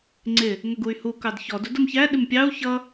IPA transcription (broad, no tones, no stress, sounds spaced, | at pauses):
ŋ͡ǀ ɪ | ŋ ə ɡ u y̯ h u k ɑ d ç ɔ d u d ʊ m ç æ ɗ ɪ m pʲ ɑ u̯ ç ʌ